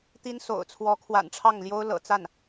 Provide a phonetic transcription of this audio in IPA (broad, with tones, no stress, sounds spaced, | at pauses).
t̪ i˥ n s o̰˨˩ ʊ̯ t͡sʰ w ɔ˧˥ kʰ w a̰˨˩ n ʈ͡ʂʰ ɑ˥˩ ŋ l j o˥ ʊ̯ l ɤ̰˨˩ t͡s a˥˩ n